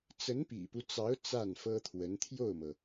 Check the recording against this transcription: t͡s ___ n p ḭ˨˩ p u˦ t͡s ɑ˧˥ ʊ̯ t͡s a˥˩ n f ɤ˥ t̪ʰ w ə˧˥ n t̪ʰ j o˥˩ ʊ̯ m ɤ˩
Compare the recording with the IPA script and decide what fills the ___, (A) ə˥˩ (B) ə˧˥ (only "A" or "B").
B